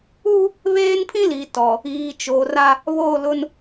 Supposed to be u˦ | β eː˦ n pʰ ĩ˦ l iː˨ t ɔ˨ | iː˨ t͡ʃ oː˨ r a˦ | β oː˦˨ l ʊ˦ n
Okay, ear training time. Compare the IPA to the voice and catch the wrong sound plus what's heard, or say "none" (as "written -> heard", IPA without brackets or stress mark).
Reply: none